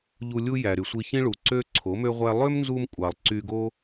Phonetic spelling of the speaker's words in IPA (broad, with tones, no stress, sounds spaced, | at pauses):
ʎ u˧ lʲ u˦ j æ˨ ɾ y˨ sʷ i˧ ç ĩ˦ ɭ u˨ ǀ ø˦ ǀʰ o˨˦ m ø˦ ʁʷ æ˦ lˠ ø˦ m n z u˧ m kʷʼ ɑ˨ lˠ ǀ y˧ ɡ o˦